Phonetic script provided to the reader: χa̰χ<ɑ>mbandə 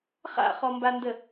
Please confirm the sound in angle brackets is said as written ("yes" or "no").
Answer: no